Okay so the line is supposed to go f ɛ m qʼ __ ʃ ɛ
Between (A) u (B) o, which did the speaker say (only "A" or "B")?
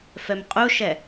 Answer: A